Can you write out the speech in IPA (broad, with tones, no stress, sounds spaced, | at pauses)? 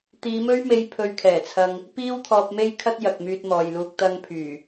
t̪ iː˨˧ m ɵ˥ ɥ m e˧ j pʰ ɵ˧ ɥ kʰ ɛː˨˩ t͡sʰ ɐ˧ ŋ | p iː˥ w t̪ʰ ɔː˧ p̚ m e˥ j kʰ ɐ˥ t̚ j ɐ˨ k̚ m yː˧ t̚ m ɔː˨ j l uː˧ k̚ t̪ ɐ˧ ŋ pʰ yː˨˩